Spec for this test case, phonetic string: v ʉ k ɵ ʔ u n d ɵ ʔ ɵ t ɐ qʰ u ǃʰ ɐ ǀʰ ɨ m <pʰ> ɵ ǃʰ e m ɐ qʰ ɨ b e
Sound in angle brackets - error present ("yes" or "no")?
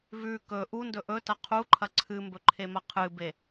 yes